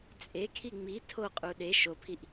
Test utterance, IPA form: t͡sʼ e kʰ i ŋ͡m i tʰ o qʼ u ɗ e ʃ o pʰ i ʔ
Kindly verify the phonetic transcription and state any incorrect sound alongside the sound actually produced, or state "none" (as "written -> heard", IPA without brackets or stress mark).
none